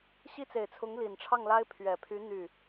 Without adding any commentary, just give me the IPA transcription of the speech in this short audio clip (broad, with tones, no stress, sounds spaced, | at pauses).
ɕ i˥˩ t͡s e˨˩ ɪ̯ t͡sʰ ʊ˧˥ ŋ l i˨˩ n ʈ͡ʂʰ ɑ˥˩ ŋ l a˥ ɪ̯ pʰ ɥ ɛ˨˩ pʰ y˧˥ n̪ y˥˩